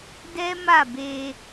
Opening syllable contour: high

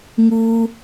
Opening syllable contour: high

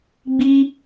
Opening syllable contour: high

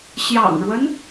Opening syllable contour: low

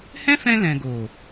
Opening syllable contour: high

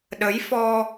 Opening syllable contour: rising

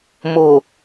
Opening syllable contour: low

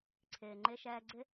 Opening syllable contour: low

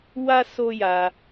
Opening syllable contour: high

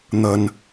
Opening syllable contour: low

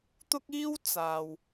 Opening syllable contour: high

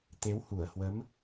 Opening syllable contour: rising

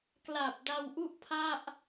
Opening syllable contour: low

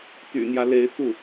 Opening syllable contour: low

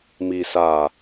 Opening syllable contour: low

